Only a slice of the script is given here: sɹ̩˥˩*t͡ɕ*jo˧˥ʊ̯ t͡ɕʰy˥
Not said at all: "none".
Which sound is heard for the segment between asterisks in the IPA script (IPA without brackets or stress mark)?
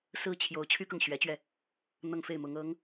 t͡ɕʰ